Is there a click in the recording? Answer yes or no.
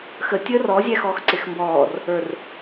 yes